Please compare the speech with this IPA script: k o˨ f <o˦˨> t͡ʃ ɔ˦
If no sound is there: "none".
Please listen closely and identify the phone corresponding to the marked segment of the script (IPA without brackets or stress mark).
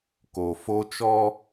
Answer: o˦